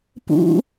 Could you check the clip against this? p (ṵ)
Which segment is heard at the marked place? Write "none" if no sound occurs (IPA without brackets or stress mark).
ṵ